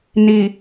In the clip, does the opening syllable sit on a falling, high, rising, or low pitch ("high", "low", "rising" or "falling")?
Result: low